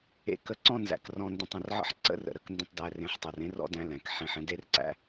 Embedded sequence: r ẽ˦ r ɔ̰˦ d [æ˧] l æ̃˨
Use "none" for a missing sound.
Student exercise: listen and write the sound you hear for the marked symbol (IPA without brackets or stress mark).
æ̃˧